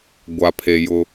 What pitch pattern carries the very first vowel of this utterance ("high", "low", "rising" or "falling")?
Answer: low